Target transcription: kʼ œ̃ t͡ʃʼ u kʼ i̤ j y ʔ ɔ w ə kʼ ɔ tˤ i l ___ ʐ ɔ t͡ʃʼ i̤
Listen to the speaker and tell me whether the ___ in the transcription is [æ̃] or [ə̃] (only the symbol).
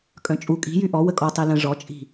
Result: ə̃